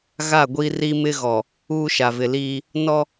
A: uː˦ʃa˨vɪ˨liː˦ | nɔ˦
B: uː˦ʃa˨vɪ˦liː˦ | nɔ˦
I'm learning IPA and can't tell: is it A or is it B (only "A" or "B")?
A